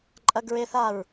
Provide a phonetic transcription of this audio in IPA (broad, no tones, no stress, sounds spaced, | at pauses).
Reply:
ǃʼ ɐ ɡ ɹ e θ a ɹ